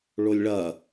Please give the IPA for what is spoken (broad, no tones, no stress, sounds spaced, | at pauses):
ɭ o lʲ ɭ ɐ